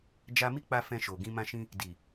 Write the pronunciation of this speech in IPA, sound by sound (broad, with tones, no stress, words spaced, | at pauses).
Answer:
d͡ʒa˧mi˦k͡pa˧ fɛ̃˧ʃo˨ɡĩ˧ mã˧ʃĩ˧ | di˨